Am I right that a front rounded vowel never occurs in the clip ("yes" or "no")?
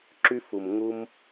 no